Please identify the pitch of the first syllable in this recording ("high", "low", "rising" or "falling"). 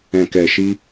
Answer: low